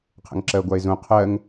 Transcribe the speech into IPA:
qʰə̰ŋǁɜɡʷae̯zũ qʰɜŋ

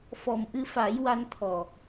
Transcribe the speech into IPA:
fɔ˨˩mʔɨ˧fa˨˩˦j wa˧nt̪ʰɔ˨˩

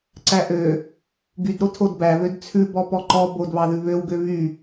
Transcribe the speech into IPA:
ǀæʔø | ɡydɾo tʰodbæβød t͡sʰʉbɔ pɔǃɔ bodβɑðʉ βøwɡø βy

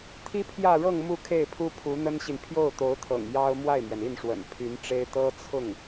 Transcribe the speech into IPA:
t̪ʰi˥pʰjä˥˧ɻɤ˥˧ŋ mu˥˧kʰe˥˩ɪ̯pʰu˥ pʰu˧˥n̪ə˥nɕi˨n pʰjo˥˩ʊ̯t̪o˧˥ʊ̯t̪ʰɤ̰˨˩ŋ jɑ˥ʊ̯ mwa˥˩ɪ̯mɥɛ˩ni˥˩nʂwə̰˨˩n pʰy˧˥nʈ͡ʂe˥ɪ̯ t̪ɤ˥t͡sʰʊ˥˩ŋ

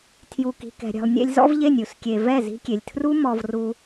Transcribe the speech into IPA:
tʰju˨ki̤˨kɛ̤˨ɾʲɛ̤˨lˠ nʲḛ˧lʲzɔ̰˦vʎe˦˨nʲ u˨skʲe˨vɛ˦˨ zi̤˧kʲe˨lʲtʰru˦ mɔ˧v ru˧

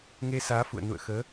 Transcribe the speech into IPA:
ŋe˧saː˨˦fṵ˧˨ə̯ nṵ˧˨ə̯xəː˨˦

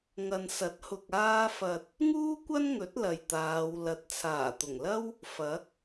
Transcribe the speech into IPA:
ŋɐ˨nsɐ˨˥t̚hʊ˨k̚ aː˧fɐ˨t̚ | ŋuː˥kʷɐ˥nŋɵ˨˥t̚ lɐ˨jt̪aː˨˧w lɐ˨˥t̚t͡sʰaː˨˩t̪ʊ˨˩ŋlɐ˥w | fɐ˨˥k̚

